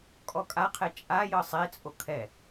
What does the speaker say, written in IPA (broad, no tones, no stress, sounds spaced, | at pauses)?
kʼ ɔ kʼ a qʰ ɛ t͡ʃʼ a j ɤ sˤ e t͡sʼ o kʰ ɛ